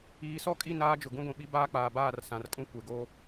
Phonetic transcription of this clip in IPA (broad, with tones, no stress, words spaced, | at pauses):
iː˨˦sɔ˦˨kʼi˦˨ naː˦d͡ʒʊ˨ ɡũ˦ɡʷĩ˨ ɓi˦ baː˦k͡paː˨baː˦˨r sã˨rkʼũ˦ kʷe˨ɡo˦